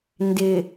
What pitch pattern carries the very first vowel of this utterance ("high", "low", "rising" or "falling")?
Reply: low